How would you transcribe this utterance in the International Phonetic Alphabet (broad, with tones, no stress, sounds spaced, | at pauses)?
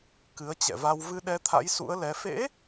k ɨ˨˦ ə̯ t͡ɕ ɛ̰˧˨ v a˧ w v ɨ˧ ɗ ɛ˧ t̪ʰ a̰˧˥ j s ṵ˧˥ ə̯ l ɛ˨˦ f ḛ˧˥